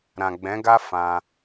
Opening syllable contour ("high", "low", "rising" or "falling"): low